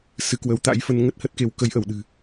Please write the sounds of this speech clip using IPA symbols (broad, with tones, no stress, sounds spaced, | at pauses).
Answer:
s ɨ˨˦ k w ə˨˦ w t̪ a̰˧˥ j f ə˧ n ŋ ə˦˥ t̚ h ə˦˥ t̚ k e˨˦ w k ə˨˦ j ʔ ə˧˩ w ɗ ɨ̤˨˩